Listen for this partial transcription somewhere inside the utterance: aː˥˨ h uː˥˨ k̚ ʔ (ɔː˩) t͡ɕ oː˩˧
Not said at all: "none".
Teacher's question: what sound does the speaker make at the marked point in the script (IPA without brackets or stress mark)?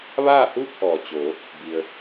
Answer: ɔː˩